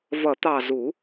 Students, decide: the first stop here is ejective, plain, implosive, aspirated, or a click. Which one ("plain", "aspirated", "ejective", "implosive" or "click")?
plain